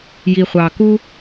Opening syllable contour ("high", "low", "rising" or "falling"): low